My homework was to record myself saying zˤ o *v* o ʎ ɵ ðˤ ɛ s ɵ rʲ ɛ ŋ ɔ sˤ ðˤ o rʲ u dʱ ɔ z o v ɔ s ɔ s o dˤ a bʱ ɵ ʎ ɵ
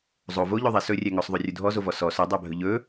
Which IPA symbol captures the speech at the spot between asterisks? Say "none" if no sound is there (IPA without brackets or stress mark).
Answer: v